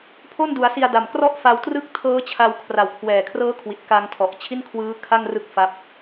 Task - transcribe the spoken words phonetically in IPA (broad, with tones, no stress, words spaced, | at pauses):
pʰo˥˩ndu˩˦a̯ si˧a̯da˨˩m krɔ˥˩ʔfa˧wtrɯ˥˩k̚ tʰɤː˦˥t͡ɕʰa˧w kʰra˨˩wkʰwɛː˨˩kʰrɤː˦˥kʰwi˨˩t̚ ka˧ŋtʰɔ˨˩ʔt͡ɕʰi˥˩nkʰwɯː˦˥ kʰa˥˩ŋrɯ˦˥k̚ fa˦˥p̚